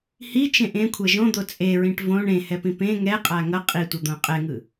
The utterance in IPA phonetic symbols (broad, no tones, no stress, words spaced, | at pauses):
hit͡ʃẽ ʔẽkʷʰɛ ʒõd̪o t͡sʼeɹĩʈ võɳ ẽhɛpĩ pẽ ŋɛqʼa ŋʌ qʼitʷʌd̪õ qʼɛŋɯ